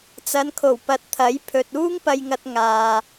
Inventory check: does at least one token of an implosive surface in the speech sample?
no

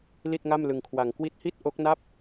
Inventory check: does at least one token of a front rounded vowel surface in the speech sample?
no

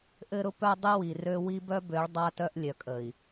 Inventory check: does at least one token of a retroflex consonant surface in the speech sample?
yes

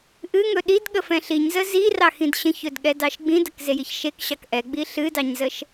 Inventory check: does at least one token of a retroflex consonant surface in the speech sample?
no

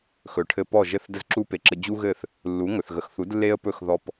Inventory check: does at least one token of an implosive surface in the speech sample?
no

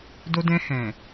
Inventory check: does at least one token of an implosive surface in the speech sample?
no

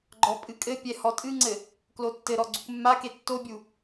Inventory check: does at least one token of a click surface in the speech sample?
yes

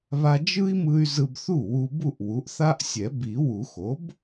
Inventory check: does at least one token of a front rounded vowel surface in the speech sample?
yes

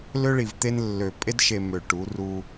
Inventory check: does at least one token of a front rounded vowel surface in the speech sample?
yes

